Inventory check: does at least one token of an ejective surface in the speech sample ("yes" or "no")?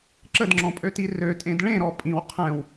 yes